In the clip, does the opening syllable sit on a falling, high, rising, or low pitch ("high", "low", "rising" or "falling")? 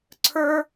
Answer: high